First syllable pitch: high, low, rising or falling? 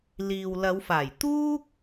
low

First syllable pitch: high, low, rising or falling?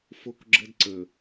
high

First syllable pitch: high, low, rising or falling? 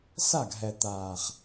falling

